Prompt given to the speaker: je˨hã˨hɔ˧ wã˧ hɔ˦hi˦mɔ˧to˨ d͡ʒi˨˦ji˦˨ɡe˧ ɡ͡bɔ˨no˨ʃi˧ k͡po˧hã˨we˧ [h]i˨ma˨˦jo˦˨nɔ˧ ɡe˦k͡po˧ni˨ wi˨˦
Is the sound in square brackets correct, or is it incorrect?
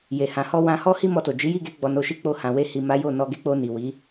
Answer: correct